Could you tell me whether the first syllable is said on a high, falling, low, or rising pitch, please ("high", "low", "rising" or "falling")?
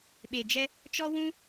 low